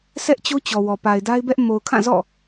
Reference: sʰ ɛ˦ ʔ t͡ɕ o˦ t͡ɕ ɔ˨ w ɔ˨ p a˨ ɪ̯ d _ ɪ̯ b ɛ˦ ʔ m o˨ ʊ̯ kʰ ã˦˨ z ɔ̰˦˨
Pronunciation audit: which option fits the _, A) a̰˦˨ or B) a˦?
B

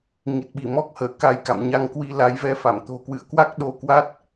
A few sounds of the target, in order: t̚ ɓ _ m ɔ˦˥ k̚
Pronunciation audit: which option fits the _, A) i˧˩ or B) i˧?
A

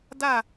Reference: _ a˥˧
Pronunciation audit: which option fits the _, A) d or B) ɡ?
A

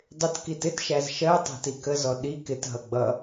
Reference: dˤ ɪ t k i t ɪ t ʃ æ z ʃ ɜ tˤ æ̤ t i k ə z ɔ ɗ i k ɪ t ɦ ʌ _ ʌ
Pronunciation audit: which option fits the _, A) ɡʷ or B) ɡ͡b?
B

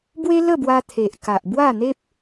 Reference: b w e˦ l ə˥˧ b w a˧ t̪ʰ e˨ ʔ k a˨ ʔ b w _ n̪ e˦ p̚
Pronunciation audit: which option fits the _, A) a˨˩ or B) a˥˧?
B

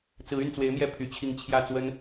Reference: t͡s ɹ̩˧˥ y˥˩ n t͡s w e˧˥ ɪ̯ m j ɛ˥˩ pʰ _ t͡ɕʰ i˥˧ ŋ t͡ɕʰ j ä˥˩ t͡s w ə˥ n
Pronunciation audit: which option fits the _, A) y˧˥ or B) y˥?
A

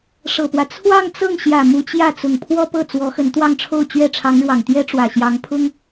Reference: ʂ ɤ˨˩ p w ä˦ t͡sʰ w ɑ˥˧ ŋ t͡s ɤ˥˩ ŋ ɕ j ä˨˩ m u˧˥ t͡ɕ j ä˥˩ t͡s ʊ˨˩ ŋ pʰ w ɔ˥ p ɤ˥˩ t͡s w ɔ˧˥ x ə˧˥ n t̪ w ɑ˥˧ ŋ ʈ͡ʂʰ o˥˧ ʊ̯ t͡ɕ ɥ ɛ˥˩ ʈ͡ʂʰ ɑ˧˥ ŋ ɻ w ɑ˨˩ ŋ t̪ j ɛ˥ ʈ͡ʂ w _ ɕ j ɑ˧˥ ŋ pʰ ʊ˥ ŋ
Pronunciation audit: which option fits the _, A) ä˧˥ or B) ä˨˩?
B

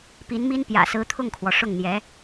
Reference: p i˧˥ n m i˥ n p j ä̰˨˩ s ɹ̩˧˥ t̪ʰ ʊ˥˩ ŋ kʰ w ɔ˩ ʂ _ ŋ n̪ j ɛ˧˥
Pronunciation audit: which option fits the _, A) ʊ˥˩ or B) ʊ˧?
A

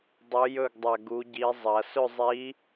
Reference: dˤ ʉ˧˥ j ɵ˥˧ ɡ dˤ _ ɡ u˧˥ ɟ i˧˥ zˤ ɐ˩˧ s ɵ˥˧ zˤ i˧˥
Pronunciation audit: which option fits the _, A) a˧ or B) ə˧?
A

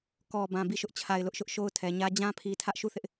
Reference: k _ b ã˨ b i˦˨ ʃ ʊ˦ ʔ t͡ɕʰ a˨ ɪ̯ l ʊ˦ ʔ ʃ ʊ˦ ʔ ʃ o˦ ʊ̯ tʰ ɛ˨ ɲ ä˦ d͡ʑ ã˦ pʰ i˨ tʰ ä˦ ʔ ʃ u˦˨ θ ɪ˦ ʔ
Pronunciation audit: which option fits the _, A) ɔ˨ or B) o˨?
A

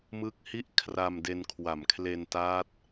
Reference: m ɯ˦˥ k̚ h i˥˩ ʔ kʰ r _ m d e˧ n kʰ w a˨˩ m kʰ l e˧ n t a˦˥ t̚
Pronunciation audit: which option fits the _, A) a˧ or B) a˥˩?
A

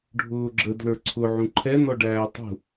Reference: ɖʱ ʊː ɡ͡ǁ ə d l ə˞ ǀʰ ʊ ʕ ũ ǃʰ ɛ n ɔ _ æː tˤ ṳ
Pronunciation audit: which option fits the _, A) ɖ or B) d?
A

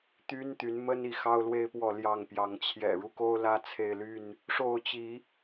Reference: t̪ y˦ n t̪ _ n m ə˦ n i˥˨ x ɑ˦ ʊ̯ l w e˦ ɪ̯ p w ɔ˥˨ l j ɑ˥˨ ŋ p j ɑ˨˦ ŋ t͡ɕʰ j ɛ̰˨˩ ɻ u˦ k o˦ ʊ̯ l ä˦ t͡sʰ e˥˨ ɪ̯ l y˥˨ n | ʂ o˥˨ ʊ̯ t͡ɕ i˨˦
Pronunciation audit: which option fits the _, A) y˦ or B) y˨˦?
B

